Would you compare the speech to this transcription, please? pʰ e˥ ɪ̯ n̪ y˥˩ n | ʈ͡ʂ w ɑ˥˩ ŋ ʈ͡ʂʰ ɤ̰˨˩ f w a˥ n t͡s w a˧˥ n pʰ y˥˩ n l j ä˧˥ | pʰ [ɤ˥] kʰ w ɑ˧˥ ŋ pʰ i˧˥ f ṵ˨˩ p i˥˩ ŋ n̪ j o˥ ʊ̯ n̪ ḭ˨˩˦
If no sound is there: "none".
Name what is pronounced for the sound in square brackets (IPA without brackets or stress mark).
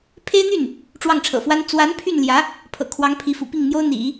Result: ɤ̰˨˩